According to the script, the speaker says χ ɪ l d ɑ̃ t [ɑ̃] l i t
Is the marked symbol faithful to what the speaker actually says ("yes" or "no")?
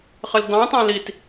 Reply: yes